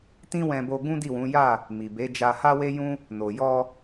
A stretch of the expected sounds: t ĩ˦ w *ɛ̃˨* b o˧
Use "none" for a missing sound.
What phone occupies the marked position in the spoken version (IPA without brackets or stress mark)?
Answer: ɛ̃˧